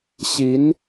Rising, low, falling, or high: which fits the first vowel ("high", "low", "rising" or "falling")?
rising